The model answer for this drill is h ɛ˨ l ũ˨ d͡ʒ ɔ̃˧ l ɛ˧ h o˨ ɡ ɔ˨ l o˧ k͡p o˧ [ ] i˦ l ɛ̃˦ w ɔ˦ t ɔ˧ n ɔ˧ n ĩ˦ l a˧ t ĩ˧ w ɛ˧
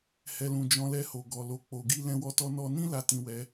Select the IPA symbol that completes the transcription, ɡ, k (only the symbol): ɡ